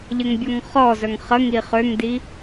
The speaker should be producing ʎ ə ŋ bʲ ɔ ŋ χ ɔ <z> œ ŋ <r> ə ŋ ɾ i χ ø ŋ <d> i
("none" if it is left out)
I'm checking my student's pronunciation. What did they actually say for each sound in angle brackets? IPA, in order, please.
z, χ, d

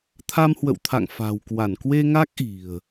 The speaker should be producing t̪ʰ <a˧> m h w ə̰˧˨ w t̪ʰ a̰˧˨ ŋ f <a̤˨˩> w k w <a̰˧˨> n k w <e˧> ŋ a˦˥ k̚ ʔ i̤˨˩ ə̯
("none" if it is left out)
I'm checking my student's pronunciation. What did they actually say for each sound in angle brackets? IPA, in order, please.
a˧, a̤˨˩, a˧˩, e˧

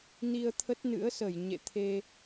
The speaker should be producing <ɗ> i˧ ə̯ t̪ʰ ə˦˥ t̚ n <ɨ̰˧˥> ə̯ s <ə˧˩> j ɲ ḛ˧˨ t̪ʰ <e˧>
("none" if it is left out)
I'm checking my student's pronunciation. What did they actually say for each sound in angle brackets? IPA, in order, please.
n, ɨ̰˧˥, ə˧˩, e˧

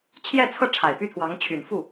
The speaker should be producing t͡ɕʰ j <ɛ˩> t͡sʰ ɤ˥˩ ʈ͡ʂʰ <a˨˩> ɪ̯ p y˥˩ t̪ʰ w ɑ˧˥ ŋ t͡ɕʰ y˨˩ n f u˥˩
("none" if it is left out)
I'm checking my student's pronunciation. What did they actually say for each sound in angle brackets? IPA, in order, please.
ɛ˥˧, a˨˩

